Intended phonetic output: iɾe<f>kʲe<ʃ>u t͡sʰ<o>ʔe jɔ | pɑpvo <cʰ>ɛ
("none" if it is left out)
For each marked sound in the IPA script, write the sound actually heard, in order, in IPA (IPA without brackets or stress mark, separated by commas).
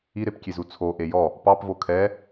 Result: p, z, o, kʰ